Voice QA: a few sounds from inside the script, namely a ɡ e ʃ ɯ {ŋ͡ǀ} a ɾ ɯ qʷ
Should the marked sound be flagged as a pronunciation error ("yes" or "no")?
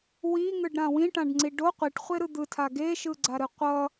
yes